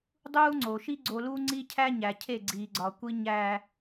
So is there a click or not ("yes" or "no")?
yes